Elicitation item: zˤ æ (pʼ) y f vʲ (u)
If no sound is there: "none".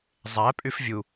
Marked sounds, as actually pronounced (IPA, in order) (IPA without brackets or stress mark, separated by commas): pʼ, u